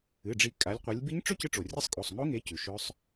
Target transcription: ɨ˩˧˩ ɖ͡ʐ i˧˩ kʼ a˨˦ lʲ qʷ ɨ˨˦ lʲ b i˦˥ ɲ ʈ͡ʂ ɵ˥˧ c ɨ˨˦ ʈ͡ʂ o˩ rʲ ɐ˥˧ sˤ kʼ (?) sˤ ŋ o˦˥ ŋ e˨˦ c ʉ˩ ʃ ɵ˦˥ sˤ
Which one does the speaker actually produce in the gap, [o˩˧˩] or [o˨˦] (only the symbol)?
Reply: o˩˧˩